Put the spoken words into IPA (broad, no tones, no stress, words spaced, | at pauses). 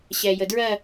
ɕɛjədɹɜ